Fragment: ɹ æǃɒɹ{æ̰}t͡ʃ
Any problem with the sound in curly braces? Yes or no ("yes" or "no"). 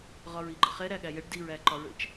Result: yes